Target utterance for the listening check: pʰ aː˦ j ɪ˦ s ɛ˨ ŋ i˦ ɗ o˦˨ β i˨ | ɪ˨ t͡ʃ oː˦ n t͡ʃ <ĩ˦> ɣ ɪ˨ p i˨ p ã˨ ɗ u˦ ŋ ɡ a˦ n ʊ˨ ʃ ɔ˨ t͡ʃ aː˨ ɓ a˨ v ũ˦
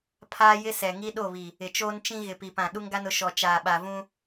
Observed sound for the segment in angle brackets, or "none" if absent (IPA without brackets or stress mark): ĩ˦